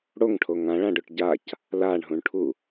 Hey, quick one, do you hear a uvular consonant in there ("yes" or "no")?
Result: no